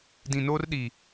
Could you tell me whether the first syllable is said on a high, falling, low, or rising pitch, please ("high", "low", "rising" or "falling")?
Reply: low